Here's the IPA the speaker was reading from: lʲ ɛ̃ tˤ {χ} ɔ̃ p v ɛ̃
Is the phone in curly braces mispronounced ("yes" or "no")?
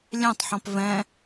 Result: yes